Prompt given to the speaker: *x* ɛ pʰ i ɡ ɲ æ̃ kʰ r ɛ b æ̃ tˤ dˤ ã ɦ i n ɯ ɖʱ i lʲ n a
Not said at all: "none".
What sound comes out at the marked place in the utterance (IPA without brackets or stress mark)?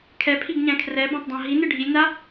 kʰ